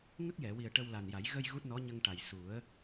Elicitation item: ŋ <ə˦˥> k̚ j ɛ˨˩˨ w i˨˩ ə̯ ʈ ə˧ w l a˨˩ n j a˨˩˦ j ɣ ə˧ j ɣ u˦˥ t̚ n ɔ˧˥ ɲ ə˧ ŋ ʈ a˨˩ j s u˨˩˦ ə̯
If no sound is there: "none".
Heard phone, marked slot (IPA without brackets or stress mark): ə˦˥